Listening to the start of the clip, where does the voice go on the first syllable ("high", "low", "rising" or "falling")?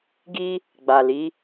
high